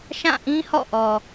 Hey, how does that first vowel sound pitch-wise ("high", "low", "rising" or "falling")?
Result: falling